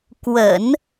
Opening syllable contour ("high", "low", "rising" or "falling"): low